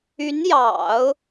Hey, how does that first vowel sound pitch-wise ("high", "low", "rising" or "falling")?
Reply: rising